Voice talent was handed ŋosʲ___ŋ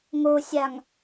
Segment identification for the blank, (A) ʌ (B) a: B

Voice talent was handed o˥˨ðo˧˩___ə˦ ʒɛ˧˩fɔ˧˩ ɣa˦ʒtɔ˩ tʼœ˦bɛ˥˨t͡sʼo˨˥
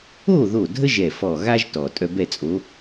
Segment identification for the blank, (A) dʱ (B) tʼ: A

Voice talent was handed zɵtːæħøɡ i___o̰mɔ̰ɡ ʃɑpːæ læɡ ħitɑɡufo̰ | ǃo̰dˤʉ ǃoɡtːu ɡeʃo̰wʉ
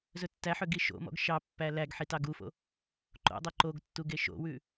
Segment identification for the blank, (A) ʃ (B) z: A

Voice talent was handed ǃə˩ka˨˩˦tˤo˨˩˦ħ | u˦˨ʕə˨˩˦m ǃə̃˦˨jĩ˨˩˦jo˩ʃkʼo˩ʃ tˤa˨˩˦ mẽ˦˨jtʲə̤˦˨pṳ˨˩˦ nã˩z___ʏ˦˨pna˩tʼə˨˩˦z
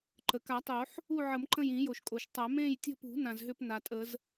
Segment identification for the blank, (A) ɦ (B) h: A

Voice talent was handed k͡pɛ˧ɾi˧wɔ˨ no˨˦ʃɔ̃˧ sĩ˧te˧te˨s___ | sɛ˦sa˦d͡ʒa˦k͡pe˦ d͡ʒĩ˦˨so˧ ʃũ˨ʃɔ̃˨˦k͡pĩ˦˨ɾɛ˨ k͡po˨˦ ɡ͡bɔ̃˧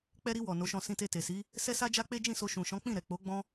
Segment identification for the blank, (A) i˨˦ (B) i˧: A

